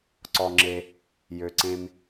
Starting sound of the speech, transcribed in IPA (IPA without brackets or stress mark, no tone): ǀ